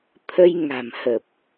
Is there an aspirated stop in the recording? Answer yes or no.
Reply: yes